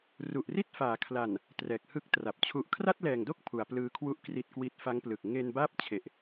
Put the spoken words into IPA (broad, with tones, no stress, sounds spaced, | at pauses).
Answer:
r u˨˩ ʔ r i˥˩ t̚ f aː˩˦ kʰ l a˨˩ n | t r ɛː˨˩ k̚ h ɯ˥˩ k̚ t r a˨˩ p̚ t͡ɕʰ u˨˩ ʔ kʰ r a˥˩ t̚ l ɛː˨˩ ŋ d o˥˩ k̚ pʰ u˩˦ a̯ p l ɯː˧ kʰ w u˥˩ ʔ k r i˨˩ t̚ k w i˨˩ t̚ f a˦˥ ŋ p l ɯ˨˩ k̚ ŋ e˧ n b aː˥˩ p̚ t͡ɕʰ e˨˩ ʔ